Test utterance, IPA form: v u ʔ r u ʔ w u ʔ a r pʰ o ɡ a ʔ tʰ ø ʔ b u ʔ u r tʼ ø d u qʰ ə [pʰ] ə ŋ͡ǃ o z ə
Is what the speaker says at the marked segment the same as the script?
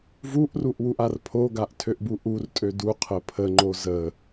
yes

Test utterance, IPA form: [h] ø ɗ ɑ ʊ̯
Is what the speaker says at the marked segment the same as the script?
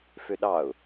no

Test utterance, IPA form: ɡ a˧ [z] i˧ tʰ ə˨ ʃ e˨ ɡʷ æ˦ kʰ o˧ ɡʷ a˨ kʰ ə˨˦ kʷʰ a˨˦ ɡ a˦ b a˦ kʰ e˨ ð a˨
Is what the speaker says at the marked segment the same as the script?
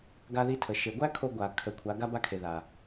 no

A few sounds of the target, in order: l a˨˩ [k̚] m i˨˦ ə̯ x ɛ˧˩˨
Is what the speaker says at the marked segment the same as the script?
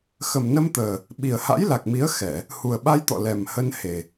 yes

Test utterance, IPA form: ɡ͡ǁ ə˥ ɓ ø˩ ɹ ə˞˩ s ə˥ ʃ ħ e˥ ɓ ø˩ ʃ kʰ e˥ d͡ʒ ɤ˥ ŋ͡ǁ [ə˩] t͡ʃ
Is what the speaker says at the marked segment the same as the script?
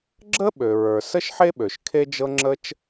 no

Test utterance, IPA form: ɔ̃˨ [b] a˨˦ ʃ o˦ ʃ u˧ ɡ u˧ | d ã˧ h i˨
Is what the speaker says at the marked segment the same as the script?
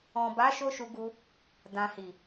yes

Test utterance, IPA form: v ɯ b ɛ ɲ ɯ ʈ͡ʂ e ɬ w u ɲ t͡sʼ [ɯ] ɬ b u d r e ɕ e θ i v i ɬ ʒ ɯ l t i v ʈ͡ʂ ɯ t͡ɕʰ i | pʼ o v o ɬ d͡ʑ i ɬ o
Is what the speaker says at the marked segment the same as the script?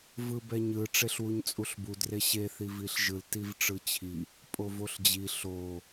no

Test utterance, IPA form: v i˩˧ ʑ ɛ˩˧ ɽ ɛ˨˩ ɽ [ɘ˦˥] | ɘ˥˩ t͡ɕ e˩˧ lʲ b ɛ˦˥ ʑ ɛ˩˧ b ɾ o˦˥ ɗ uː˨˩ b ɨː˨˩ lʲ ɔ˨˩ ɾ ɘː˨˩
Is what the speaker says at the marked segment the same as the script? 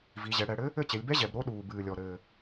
yes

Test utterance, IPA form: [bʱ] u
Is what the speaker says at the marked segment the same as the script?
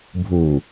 yes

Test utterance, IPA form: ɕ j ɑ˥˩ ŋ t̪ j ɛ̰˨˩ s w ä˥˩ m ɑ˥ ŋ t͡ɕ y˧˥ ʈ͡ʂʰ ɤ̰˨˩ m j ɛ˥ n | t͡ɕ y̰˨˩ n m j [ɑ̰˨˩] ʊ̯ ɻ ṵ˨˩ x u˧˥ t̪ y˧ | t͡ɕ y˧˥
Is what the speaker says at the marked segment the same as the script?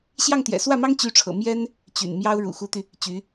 no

